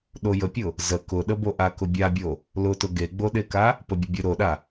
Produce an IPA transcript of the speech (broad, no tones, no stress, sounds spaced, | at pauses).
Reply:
ɗ o j ə pʲ ʊ | z ə k ʊ ɗ ə b o ʔ a k ʊ bʲ a bʲ o | l ʊ t ʊ ɡ e ɡ͡b o ɗ e k a | p ə bʲ ə bʲ ə ɾ o ɗ a